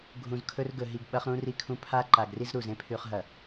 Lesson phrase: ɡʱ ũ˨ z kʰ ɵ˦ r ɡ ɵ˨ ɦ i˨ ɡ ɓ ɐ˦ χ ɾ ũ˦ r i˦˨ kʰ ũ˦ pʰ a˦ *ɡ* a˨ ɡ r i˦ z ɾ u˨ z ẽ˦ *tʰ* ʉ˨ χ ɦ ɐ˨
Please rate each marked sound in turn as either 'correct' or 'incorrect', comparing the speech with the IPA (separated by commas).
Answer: incorrect, incorrect